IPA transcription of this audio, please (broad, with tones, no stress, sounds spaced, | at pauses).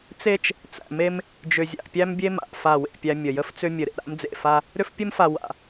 t͡s e˦ t͡ʃ | t͡s æ̰˨ m e˦ m | d͡ʒ ʏ˨ zʲ a̰˨ ʔ pʲ æ˦ m bʲ e˦ m a̰˨ ʔ f a˦˨ w ḛ˦˨ pʲ æ˦ mʲ ə˨ j ə˦ f t͡s ʏ˦ mʲ ɘ˨ ɾ ḛ˨ ɾ a̰˦ m d͡z ḛ˨ f a˦ | ɾ ʏ˦ f pʲ ɘ˦ m f a˨ w a̰˨